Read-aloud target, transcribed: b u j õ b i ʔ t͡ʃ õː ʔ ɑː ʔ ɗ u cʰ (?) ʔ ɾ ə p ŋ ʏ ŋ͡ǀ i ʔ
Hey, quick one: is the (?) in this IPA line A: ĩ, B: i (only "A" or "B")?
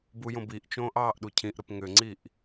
A